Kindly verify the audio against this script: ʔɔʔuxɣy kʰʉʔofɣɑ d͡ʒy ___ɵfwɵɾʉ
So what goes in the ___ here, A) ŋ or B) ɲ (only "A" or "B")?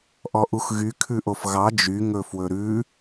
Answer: A